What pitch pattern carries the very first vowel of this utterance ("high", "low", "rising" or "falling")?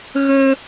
high